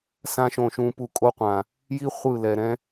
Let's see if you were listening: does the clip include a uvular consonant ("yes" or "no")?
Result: yes